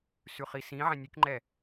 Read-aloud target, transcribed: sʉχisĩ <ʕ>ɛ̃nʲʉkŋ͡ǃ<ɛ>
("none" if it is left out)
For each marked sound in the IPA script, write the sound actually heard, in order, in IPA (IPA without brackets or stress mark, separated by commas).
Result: ʕ, ɛ